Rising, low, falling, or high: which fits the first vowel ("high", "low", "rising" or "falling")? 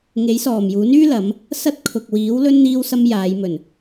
rising